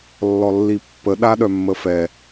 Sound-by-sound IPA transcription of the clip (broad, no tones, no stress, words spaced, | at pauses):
lːɔlːipːə ɗaɗœmːəfɛ